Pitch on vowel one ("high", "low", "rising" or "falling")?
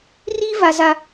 high